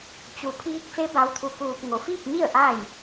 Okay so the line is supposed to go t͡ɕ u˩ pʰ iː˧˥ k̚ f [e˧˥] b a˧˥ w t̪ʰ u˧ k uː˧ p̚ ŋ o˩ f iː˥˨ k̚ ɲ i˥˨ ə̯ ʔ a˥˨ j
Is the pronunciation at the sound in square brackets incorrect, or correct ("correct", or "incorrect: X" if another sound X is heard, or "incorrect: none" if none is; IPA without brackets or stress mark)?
correct